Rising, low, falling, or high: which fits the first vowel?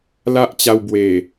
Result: high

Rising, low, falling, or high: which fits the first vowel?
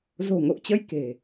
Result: low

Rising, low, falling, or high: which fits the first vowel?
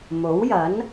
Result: rising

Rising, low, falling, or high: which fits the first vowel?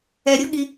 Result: low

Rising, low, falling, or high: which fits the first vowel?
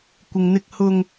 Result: low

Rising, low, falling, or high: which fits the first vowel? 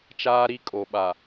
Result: high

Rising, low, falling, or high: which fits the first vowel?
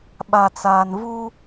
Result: low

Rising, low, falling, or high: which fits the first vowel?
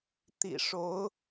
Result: low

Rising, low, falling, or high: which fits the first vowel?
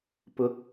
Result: rising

